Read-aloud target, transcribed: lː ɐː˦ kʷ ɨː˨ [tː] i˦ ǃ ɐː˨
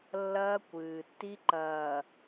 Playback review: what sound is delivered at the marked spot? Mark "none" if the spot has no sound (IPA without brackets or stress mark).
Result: tː